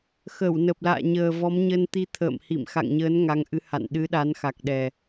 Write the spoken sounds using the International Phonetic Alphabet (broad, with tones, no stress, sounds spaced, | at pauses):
x ə˧˩ w n ə˨˩ p̚ l a̰ː˧˨ ɲ əː˨˩ v ɔ˨˦ m ɲ ə˧ n t̪ i˧ t̪ʰ ə̰ː˧˨ m h ḭ˧˨ m x a̰˧˨ ŋ ɲ əː˨˦ n ŋ a˨˦ ŋ ʔ ɨ˨˦ h a̰˧˨ n ɗ ɨ˨˦ ɗ a˨˦ n x a˨˩ k̚ ɗ ɛ˨˩